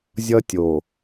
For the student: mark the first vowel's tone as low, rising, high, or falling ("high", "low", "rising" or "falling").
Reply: high